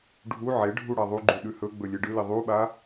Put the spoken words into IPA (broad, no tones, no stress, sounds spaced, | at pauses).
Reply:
ɖʱ u ʕ e ɖʱ u ɽ a ðˤ u ɡ͡ǃ ʉ ɗ ʉ h ɵ ɡ͡b ɵ lʲ e ɖ ɨ l i ðˤ u ɓ a